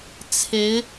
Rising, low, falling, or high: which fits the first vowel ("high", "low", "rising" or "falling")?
rising